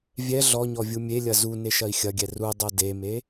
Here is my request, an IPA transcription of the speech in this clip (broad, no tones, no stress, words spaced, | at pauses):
vʲɛ ɮɔɲɔ vʲumʲelʲɐ zu neʃɐi̯xʲɐɡʲɛ rudˤɜ deme